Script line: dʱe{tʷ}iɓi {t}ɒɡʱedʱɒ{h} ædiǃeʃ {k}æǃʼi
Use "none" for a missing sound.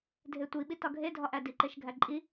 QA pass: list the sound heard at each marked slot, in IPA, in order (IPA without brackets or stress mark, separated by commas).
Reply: tʷ, t, ʔ, ɡʱ